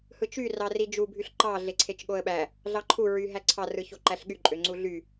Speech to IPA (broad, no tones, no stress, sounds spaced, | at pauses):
h ɯ t͡ʃ y r ɑ r i d͡ʒ u bʱ y ɬ ǃ ɑ ɮ e ǀʰ e t͡ʃ ɠ o ə̯ ɓ æ | ɮ ɑ ǃʰ u ɹ y ɦ æ ǀʰ ɑ r ɯ ç o ǃ æ ɬ ɠ y ǃʼ ø ŋ͡ǀ u ɮ y